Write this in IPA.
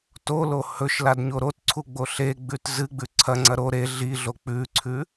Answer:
t o l o h ɵ ʃ l a d ɲ o ɾ o t ǀʰ u ɡ͡b o ɬ e ɡ͡b ʉ t z ɨ ɡ͡b ʉ ǀʰ ɐ ŋ͡ǀ ɐ ɾ o ɾ e ɮ i ɮ o k͡p ʉ ǀʰ ʉ

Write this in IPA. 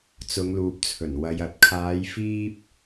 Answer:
t͡s ʊ˨˧ ŋ l uː˨ p̚ t͡sʰ ɵ˨˩ n w ɐ˨ j ɐ˨ t̚ kʰ aː˨˧ j f iː˧ p̚

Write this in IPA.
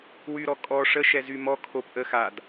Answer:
w y ɾ ɔ kʼ ɔ ʂ ə ʃ ɛ z y m ɔ kʰ o p ʔ ə x a d

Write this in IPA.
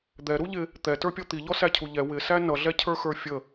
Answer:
d̪ ɛ ɾ u ʎ ɪ | t̪ ɛ t ə˞ pʲ ɔ t̪ i ʎ ɔ s æ cʰ u ʎ ɛ w ɪ s æ n ʌ ɮ ɛ cʰ ə˞ x ə˞ fʲ ə

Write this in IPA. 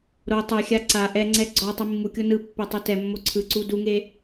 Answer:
ɾ o tˤ e xʲ a ǀ a ʔ ɛ ŋ͡ǀ ɛ ɡ͡ǀ ɔ tˤ i mː u kʲ o n ɯ pː e tˤ u t ɛ mː o ǀʰ ɯ ǀ u d u ŋ e

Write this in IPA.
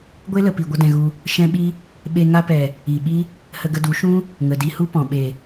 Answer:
ɡʷ e˦ l ə˨ p i˨ ɡʷ ə˦ d ɛ̃˧ ɣ u˧ | ʃ ɛ̃˦ ɓ i˦ | ɓ e˧ ŋ a˧ p ɛ˨ | i˨ ɓ i˦ | h ə˧ ɡ ə˧ d u˨˦ ʃ ũ˦ | ŋ ə˨ d i˧ h u˦ p ɔ̃˨ ɓ e˨

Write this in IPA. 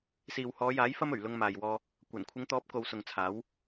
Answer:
s iː˨ w h ɔː˨˧ j aː˨˥ j f ɐ˥ m ɵ˨˩ ɥ l ʊ˧ ŋ m aː˨ j w ɔː˧ | kʷ ɐ˨˩ n kʷʰ ɪ˨˧ ŋ t̪ ɔː˨˥ p̚ k o˨˧ w s ʊ˨ ŋ t͡sʰ aː˨˥ w

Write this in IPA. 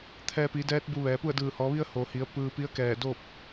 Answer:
t̪ʰ ɛː˧ p i˩˧ d ɛː˧˥ t̚ b u˧ ʋ ɛː˩˧ p u˥˨ ə̯ d ɯː˧˩ h ɔː˩˧ ʋ i˧ ə̯ h o˩ h i˩˧ ə̯ p ɯː˧ p i˧˥ ə̯ k ɛː˧˩ d o˥˨ p̚

